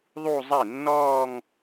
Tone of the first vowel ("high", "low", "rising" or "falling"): falling